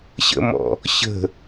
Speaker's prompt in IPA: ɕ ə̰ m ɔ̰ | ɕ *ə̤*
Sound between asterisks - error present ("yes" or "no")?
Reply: no